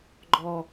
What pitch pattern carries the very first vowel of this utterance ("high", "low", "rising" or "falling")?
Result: low